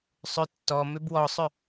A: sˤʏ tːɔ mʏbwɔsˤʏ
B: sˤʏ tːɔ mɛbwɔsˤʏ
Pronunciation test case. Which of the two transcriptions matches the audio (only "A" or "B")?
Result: A